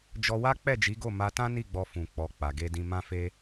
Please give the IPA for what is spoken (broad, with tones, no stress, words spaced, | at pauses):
d͡ʒɔ˧wa˦ k͡pɛ˦˨d͡ʒi˨˦ɡo˦˨ ma˧tã˦ni˦˨ɡ͡bɔ˧ fũ˨k͡pɔ˨ k͡pa˨ɡe˧dĩ˧ mã˦fe˦